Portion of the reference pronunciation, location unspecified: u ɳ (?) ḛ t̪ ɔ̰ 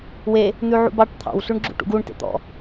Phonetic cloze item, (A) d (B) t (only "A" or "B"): B